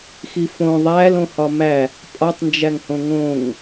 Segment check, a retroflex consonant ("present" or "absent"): absent